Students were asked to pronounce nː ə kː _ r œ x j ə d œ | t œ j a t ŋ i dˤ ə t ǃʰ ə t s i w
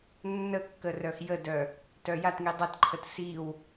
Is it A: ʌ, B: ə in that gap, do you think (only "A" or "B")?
B